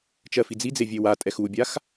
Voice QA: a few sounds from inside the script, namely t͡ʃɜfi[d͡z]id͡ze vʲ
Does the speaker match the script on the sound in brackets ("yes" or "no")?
yes